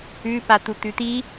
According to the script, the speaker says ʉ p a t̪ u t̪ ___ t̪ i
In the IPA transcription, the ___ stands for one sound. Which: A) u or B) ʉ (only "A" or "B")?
B